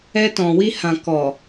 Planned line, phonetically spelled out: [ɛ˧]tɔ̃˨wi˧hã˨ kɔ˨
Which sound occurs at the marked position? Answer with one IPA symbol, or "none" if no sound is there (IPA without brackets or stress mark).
ɛ˧